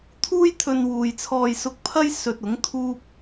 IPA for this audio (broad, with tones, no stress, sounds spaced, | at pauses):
t̪ʰ uː˥ j t̪ʰ ɵ˧ n w uː˨ j t͡sʰ ɔː˧ j s ʊ˧ k̚ pʰ ɐ˥ j s ɵ˧ t̚ ʊ˨˥ ŋ t̪ʰ uː˥ p̚